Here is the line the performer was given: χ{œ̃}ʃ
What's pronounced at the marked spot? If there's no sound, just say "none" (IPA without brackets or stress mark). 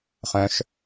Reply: œ̃